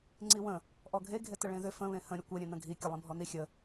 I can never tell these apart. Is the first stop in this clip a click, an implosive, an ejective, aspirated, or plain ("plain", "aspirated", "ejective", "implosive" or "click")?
click